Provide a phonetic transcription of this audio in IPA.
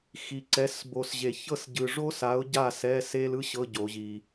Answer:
xi˨ǀɛ˨˥s bo˨sʑe˨˩˦çɤ˥˨sɟɯ˨ ʐo˥sa˨˥ʊ̯ ɟa˥˨sɛ˧˥˧ se˥lɯ˥ɕɤ˧˥˧ ɟo˨˩˦ʑi˨

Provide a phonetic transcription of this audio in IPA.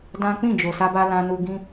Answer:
dã˦ k͡pĩ˦˨d͡ʒo˨ sa˧ba˧ lã˧nu˧ɡĩ˦

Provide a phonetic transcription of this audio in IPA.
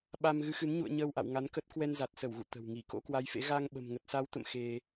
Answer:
ɓa˧m ɣɨ˨˦xɨ˨˦n ɲṵ˧˨ə̯ ɲəː˧wʔa̰˧˨w ŋa˨˦nkə˦˥t̚ kwɛ˧nza˨˩t̚sə˧˩wɣṵ˧˨ t̪ə̤˨˩wŋi˧˩ ko̰˧˥kwa˨˦jfḛ˧˥ ɣa˧ŋ ɓə̤˨˩mŋə˨˩t̚sa˨˦wt̪ə̰˧˨m xe˧

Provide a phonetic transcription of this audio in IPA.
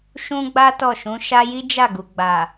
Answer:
ʃũ˦ɡ͡ba˦ tɔ˦˨ʃũ˨˦ʃa˦ ji˦d͡ʒa˦˨ɡu˨ ɡ͡ba˨

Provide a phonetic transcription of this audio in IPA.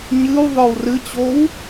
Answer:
ɲɨw ðˤə˞wrɨt͡ɕow

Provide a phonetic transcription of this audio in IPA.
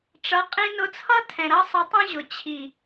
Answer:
ʈ͡ʂʌ˨˦qʼĩ˧nʊ˧t͡sʰʌ˦ tʰɛ̃˨ɾʌ˦sˤɪ˧tˤũ˦ ʑʊ˨ t͡ɕʰi˨

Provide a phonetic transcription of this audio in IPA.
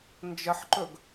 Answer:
nd͡ʒəħǃɵɡ

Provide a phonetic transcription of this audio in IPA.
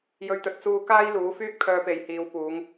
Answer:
jɵ˧ɥt̪ɵ˨˥t̚ t͡suː˧kaː˥jluː˨˥ fyː˥k̚pʰœː˧pe˨jhiː˨˧w puː˨˧ŋ

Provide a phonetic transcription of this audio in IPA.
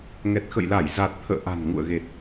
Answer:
ŋɛ˨˩t̚xə̰˧˨jla˧˩j za˨˩t̚t̪ʰə̰ː˧˨ ʔa̤˨˩nŋṵ˧˨ə̯ɣe˨˩t̚

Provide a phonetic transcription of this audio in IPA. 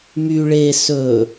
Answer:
my ɭe sɵ

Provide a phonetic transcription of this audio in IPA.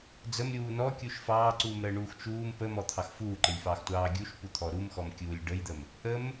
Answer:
d͡zəmɾʲuː nɔkʲuʃ fɑːǀuːmɾəːɳuːx t͡ʃuːm pəmɔt̪ʰɑx fuːǃəlʲfɑːxtʷɑː ɡʲuʃput̪ʰɔ ɾumxɔmkʲuːlʲ ɖəjd̪əm | ʔəm

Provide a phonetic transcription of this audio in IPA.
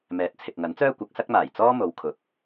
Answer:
mɛː˨t̚t͡sʰɪ˨k̚ŋɐ˨˥nt͡sœː˥ kʷɐ˨˥k̚sɐ˥k̚maː˨˩j t͡sɔː˥mo˨˧w kʰʊ˨˥k̚

